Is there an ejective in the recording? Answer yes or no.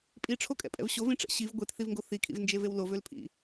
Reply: yes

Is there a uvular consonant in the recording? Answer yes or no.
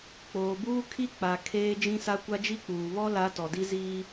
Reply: no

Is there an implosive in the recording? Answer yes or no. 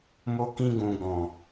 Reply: no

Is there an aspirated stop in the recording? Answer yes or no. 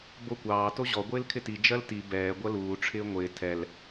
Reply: yes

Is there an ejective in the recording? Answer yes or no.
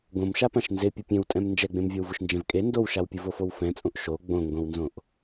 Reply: yes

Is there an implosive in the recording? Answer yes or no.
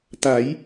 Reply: no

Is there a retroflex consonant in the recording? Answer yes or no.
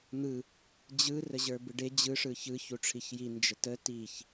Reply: yes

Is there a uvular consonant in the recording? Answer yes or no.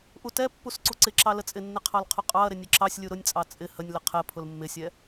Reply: yes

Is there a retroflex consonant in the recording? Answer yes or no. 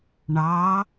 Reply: yes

